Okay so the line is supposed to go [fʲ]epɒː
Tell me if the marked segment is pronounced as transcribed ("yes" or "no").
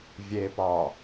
no